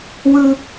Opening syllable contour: high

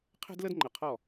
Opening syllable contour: high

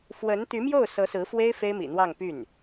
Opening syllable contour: rising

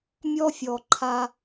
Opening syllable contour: high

